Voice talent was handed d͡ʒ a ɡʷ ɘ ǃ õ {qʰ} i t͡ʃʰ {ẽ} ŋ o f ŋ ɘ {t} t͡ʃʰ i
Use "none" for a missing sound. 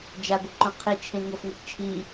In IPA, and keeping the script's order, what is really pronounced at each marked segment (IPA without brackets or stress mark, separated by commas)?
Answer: qʰ, ẽ, t